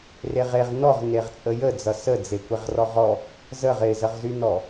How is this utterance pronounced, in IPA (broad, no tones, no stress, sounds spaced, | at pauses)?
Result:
r e ʁ e ʁ n ɔ ʁ n e ʁ t͡sʼ ə j ə d͡z ʌ s ə d͡z e kʷ e ʁ r ɔ ʁ ɔ | z ə ʁ ɪ z ə ʁ z y n ɔ